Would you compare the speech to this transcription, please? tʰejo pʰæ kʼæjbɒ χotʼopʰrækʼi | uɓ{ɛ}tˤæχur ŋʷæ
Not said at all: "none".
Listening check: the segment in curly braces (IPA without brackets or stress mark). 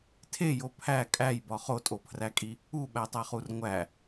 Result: æ